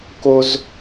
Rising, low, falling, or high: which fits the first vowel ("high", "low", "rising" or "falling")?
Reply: high